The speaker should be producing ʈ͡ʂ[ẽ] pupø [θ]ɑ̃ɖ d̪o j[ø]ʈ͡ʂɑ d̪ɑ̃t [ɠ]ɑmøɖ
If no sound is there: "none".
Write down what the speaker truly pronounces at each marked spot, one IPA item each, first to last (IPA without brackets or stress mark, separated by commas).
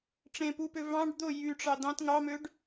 ẽ, v, y, ŋ